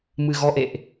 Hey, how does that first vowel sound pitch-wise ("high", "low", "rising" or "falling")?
low